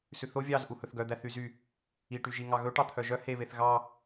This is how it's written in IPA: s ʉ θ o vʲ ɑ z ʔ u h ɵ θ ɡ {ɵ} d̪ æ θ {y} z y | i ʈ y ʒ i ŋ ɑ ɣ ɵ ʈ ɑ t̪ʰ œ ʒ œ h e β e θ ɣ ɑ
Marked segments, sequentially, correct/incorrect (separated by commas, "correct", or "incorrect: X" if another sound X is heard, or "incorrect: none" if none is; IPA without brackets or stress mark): incorrect: œ, correct